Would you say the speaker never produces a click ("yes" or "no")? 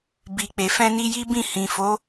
yes